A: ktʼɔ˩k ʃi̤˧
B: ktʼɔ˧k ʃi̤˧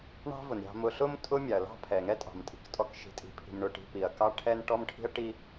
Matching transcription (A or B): B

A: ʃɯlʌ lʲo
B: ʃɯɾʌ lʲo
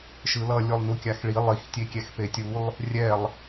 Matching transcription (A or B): A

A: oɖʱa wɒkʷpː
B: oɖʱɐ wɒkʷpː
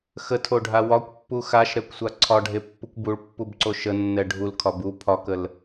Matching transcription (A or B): A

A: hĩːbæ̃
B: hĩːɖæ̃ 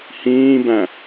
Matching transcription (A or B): A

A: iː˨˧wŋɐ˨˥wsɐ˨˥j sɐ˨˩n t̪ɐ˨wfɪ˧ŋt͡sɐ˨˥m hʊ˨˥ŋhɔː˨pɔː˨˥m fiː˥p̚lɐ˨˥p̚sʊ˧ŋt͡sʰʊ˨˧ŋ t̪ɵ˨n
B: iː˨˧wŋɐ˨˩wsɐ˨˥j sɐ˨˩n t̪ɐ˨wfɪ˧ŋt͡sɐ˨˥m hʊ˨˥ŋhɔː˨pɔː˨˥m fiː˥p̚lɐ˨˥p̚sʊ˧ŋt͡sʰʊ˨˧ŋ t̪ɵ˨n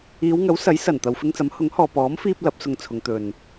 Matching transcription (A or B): A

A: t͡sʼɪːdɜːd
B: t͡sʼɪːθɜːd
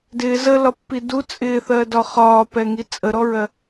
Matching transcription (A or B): B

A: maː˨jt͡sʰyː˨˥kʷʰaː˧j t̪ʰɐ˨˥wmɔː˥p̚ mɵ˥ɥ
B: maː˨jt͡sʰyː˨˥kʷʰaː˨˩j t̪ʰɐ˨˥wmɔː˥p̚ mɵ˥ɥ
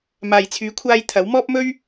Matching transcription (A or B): A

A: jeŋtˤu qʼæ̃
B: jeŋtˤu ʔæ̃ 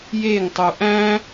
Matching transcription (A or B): B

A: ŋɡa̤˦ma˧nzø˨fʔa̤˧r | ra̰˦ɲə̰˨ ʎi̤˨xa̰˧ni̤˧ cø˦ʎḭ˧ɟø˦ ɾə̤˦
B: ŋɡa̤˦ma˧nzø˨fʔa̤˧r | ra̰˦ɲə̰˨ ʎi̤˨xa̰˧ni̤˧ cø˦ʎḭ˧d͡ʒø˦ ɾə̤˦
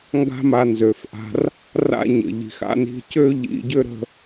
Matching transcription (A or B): A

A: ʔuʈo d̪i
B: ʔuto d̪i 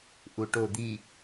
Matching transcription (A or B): A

